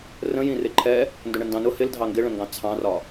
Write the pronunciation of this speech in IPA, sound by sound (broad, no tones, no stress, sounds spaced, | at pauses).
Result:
r ə̃ j ĩ r ɪ ǃʰ ɛ | n d ʊ ɳ ə n d ɑ̃ n ʊ h ɪ l dʱ ɑ ŋ ɡ ɪ ɭ ə̃ ŋ ɡ ɑ̃ t͡sʰ ɑ̃ r ɒ